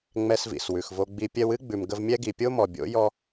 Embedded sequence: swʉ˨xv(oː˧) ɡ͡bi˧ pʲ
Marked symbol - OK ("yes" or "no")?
no